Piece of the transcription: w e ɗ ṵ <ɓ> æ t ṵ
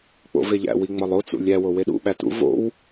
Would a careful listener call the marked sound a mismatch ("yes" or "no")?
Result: no